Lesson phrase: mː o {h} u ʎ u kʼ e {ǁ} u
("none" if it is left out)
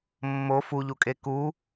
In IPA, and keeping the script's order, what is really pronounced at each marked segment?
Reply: f, k

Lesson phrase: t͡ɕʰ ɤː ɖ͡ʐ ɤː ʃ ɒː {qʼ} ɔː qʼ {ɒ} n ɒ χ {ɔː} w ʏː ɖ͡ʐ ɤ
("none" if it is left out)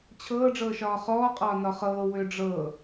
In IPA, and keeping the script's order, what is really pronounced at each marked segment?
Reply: χ, ɒː, ɤː

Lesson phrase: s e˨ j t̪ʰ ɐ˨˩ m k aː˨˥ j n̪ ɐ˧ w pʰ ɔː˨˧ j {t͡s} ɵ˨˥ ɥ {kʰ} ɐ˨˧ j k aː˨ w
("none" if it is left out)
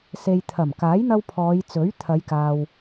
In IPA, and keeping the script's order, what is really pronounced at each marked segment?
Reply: t͡s, t̪ʰ

